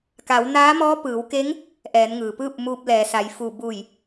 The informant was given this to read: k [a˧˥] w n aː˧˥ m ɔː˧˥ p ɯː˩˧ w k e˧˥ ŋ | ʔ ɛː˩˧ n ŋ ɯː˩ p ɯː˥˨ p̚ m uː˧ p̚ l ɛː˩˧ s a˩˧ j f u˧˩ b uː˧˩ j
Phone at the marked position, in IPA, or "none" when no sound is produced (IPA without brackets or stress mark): a˩˧